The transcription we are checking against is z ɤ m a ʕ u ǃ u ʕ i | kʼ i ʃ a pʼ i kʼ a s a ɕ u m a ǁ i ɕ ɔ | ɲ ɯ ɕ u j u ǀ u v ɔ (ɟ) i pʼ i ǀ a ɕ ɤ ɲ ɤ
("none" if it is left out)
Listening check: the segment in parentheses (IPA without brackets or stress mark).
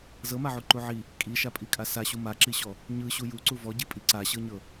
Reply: ɟ